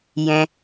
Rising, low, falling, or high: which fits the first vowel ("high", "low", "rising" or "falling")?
high